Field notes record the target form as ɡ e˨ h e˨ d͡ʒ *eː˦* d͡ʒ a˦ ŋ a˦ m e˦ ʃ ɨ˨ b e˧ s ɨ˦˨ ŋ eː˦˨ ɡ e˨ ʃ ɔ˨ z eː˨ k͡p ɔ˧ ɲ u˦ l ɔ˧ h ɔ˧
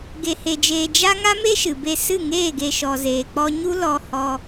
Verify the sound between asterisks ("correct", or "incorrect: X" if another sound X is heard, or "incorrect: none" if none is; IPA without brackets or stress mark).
incorrect: eː˨